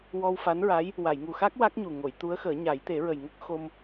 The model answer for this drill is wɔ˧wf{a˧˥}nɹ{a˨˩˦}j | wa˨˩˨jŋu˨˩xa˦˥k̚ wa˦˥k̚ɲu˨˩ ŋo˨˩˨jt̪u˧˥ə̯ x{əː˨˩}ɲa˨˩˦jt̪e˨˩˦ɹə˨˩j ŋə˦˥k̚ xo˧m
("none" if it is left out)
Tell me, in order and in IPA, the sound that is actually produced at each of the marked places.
a˧˥, a˧˥, əː˨˩˦

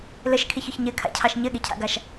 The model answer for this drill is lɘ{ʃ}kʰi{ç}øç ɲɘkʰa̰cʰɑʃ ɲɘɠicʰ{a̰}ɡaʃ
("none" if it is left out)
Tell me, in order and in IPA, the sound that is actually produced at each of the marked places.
ʃ, ç, a̰

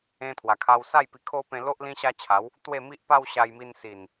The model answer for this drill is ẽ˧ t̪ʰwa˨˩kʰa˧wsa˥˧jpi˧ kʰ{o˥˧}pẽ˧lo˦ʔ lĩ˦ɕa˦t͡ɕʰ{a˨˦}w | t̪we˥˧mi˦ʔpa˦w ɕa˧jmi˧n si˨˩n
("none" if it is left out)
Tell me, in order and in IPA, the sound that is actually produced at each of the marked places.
o˦, a˨˦

